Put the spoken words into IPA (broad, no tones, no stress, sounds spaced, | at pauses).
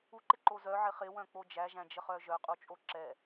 u ǃ ɪ ǃ o z œ ʕ ɪ χ ɪ w œ̃ k͡p o d͡ʒ æ ʒ æ̃ d͡ʒ ə χ œ ʒ œ qʼ u t͡ʃʼ o ǁ ɛ